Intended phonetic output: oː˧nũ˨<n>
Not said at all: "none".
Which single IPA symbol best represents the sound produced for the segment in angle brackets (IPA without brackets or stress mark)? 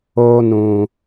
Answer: none